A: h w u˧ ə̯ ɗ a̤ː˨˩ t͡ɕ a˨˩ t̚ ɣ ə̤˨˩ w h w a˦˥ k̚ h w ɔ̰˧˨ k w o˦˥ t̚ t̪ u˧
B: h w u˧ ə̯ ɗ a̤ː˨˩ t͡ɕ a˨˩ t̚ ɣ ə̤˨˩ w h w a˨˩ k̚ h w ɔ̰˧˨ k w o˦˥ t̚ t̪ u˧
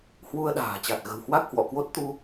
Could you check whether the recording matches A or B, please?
A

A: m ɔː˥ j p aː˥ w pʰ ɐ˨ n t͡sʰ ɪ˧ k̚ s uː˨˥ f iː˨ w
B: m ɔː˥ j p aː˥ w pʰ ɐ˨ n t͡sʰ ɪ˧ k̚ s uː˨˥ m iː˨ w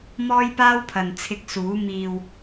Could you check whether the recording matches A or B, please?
B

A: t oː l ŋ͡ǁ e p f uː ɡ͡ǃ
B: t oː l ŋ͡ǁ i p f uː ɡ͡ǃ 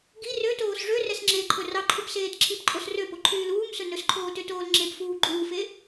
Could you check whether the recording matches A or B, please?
A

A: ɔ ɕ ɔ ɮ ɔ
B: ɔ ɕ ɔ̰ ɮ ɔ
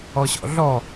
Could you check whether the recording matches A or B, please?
B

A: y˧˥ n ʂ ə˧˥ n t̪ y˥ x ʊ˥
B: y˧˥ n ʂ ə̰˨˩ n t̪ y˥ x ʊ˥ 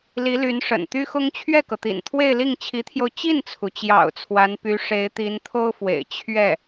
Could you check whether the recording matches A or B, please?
B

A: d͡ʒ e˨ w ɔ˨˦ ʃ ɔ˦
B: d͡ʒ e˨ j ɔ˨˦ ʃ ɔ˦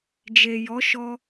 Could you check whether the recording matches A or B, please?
B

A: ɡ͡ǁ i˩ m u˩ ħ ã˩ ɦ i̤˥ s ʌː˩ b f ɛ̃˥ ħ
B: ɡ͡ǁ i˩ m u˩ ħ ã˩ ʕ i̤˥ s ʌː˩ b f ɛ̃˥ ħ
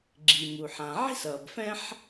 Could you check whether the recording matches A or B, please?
B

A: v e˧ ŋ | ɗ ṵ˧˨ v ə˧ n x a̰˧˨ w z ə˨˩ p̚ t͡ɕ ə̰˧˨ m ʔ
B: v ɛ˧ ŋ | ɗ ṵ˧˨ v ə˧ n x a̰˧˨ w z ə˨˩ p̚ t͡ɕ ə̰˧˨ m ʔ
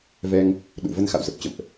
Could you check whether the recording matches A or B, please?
B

